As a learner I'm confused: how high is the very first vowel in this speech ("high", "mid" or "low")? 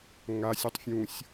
low